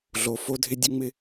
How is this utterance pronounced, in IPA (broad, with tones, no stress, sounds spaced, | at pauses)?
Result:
ɮ o˨˦ f o˦ dʱ ɪ˦ dʲ ʌ˦ ŋ͡m ɪ˦